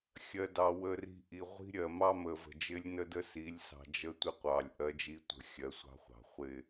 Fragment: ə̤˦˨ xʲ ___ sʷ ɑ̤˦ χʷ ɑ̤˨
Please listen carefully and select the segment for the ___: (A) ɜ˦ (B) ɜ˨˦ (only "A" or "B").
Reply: B